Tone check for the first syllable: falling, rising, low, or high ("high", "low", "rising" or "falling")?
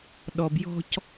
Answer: low